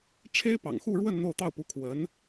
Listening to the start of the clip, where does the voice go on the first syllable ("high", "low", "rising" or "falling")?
high